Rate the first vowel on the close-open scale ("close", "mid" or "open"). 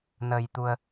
mid